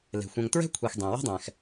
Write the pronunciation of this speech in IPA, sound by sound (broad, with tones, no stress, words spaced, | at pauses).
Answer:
le̤˩xʷɛ̃˨ŋ tɹɛ̤˥kʷʰe˨x dˤẽ˩ wɛ̤˥dˤɛ̃˩x